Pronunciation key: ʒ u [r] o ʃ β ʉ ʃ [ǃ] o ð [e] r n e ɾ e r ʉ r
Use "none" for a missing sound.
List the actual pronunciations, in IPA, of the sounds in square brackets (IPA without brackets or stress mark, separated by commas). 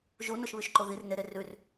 n, ǃ, i